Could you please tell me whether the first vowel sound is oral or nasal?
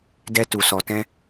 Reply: oral